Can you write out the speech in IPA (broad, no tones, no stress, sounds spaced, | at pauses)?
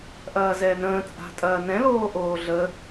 ʔ ɐː z ɛː n ə̃ː t͡sʼ a̤ tʼ ɐː n ɛ̃ l oː ʔ oː ɮ ə